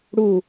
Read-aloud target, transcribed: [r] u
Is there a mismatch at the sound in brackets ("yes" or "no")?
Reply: yes